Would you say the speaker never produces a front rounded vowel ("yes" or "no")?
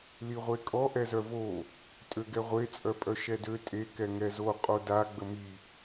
no